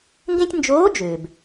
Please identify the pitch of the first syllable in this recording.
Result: high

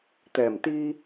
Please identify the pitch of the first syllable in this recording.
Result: low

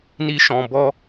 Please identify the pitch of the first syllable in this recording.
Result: high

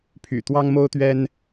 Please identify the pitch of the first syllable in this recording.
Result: low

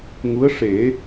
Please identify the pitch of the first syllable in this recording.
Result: rising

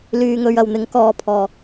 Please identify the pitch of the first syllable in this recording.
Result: low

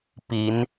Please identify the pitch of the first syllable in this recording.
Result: rising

